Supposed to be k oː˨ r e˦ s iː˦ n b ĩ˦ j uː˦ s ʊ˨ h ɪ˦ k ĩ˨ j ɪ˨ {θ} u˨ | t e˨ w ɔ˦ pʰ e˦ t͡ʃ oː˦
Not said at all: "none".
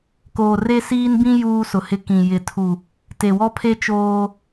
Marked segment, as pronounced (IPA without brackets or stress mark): tʰ